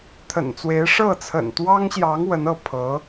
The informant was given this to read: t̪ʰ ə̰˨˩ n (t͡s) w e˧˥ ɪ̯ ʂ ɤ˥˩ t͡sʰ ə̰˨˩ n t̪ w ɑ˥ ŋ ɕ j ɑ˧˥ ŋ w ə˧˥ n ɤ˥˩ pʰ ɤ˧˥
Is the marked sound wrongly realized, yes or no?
no